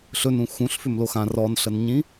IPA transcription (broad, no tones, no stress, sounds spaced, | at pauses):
ɬ ɵ n ũ x ũ ɬ f ʏ m l o x ã r ɔ n ɬ ə n ɲ ĩ